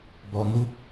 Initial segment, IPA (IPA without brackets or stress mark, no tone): b